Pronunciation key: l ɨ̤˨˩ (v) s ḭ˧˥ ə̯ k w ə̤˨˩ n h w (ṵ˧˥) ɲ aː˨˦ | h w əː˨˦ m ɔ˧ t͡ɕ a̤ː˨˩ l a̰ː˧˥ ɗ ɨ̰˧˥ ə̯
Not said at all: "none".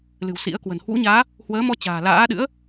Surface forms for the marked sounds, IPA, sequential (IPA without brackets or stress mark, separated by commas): w, ṵ˧˥